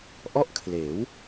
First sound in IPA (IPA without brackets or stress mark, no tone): ʔ